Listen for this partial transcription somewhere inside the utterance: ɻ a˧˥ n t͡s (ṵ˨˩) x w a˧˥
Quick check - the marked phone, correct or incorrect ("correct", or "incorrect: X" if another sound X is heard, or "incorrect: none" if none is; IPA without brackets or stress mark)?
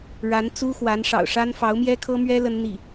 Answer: incorrect: u˥